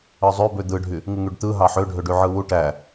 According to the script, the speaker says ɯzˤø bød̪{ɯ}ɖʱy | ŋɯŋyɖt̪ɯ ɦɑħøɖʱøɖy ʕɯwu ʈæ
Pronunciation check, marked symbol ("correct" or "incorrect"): correct